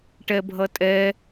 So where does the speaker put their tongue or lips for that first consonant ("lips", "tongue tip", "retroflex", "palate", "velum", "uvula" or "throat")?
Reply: retroflex